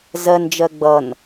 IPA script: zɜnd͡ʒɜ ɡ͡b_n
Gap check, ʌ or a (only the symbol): ʌ